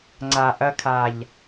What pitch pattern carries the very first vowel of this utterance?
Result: low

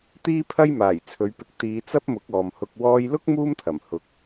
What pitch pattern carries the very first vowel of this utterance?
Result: high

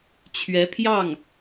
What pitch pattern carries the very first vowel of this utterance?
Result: rising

